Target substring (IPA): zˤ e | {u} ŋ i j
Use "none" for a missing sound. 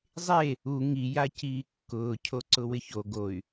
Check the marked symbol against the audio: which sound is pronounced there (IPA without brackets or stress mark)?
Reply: u